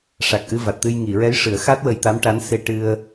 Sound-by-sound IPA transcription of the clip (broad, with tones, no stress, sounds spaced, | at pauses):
ʂ a˨˩ k̚ ʔ ɨ˧ v a˨˩ t̚ t̪ ɨ˧ j ŋ i˨˩˨ ɹ ɛ˧˥ j ʂ ɨ˨˩˦ ə̯ x a˦˥ t̚ w ə˧ j t̪ a˧˥ m ʈ a˧˥ n s e˧ ʈ ɨ˧ ə̯